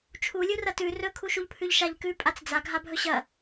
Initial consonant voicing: voiceless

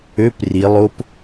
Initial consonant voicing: voiceless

